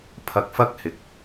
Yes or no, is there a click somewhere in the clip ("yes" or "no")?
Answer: no